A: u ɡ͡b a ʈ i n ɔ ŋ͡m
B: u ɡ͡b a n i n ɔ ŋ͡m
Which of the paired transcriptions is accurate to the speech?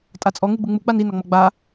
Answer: B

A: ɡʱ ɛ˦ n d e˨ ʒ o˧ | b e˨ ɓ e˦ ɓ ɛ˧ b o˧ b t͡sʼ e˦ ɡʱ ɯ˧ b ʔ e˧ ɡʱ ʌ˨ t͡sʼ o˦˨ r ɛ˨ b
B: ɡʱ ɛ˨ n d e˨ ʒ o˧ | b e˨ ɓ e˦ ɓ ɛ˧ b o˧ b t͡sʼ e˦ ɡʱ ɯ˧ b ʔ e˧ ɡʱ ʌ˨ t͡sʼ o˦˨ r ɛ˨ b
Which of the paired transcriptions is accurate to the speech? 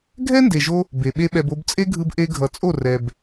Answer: A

